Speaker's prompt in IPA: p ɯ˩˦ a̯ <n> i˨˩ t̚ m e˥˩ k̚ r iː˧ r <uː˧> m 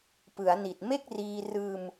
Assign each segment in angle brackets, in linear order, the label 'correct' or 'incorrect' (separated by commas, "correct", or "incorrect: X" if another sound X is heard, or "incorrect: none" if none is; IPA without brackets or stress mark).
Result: correct, incorrect: ɯː˧